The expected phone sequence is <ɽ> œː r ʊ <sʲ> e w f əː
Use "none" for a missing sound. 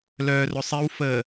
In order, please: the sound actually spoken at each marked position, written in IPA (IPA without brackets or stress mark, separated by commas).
l, sˤ